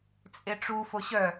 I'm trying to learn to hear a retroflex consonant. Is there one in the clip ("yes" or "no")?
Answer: yes